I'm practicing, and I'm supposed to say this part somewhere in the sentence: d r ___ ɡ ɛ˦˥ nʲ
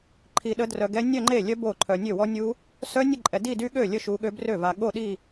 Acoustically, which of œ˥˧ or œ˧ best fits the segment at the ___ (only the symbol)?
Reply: œ˧